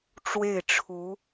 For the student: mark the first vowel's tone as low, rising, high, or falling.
falling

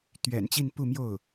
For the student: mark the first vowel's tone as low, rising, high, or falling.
low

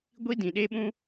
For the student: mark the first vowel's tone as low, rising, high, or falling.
high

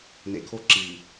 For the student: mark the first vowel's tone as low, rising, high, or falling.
low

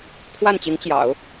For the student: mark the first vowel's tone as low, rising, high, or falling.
falling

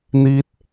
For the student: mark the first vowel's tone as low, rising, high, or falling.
high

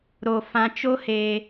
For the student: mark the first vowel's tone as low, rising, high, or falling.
low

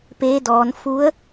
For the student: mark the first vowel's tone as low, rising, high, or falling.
rising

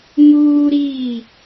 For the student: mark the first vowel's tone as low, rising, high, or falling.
high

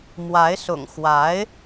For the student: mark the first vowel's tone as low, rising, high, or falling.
rising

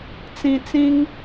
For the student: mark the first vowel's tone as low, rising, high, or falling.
low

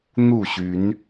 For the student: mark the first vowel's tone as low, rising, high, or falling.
falling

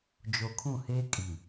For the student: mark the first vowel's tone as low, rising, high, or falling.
low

